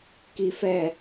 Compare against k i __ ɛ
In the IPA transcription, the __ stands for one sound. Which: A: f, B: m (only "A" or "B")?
A